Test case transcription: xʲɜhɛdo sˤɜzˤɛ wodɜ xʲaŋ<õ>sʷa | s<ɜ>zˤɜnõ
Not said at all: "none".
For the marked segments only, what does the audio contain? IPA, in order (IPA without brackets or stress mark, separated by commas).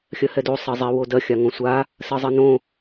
õ, ɜ